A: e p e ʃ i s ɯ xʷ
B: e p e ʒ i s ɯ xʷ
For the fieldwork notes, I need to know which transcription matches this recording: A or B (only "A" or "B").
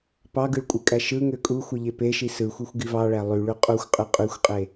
A